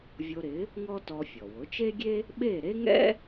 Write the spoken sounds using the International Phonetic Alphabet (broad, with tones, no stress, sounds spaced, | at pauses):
vʲ o˧ ɾ ɪ˩˥ | ŋ ɔ˥ t ɔ˧ fʲ ɔ˩ w ʊ˩˥ t͡ʃ e˥ ɡʲ e˥ | ɓ e˥˩ ɾ e˥ ŋ ɛ̰˥